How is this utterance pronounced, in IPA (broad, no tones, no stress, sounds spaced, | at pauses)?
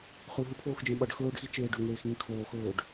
χ ʉ ɦ ɨ pʰ oː x d͡ʒ ẽ ɓ ɐ ɖ x ɵː ɖ x i t͡ʃ eː ɖ ɵ ŋ eː x ŋ ĩ kʰ oː x ɵː ɖ